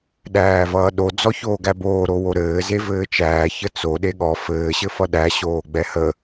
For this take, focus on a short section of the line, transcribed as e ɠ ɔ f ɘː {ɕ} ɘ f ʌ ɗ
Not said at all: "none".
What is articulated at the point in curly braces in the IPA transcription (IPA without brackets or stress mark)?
ɕ